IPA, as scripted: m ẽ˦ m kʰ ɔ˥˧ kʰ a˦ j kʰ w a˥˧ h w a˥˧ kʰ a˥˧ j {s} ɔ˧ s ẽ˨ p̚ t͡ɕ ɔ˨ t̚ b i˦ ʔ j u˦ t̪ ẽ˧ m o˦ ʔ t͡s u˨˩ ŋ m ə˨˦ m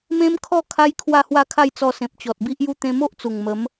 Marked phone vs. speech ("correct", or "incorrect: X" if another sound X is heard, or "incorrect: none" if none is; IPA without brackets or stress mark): incorrect: t͡s